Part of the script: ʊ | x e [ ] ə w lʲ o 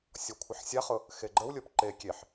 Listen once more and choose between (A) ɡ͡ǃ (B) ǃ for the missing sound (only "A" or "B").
A